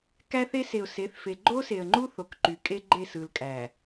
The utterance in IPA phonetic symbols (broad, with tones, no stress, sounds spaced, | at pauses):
k æ˦ θ e˦ s e˨ ʊ̯ s e˨˦ θ f e˨ ɡ͡ǃ o˦ s e˨ ə̯ ŋ͡ǃ u˦ θ o˨ k ǃ y˨ kʼ e˦ ɡ͡ǃ e˦˨ s ɯ˨ l kʼ æ˨